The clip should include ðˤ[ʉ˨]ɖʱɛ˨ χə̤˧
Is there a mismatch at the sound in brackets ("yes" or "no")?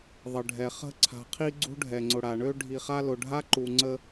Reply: yes